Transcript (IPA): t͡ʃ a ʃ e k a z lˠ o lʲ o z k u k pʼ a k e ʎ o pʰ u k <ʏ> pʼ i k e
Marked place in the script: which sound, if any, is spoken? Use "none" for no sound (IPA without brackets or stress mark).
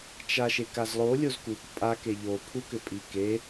ʏ